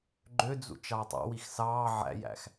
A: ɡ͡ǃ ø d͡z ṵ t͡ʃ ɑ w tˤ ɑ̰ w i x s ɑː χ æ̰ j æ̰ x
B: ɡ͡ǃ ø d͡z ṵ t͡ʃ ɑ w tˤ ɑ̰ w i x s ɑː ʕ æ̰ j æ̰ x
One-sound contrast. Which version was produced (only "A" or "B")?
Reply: B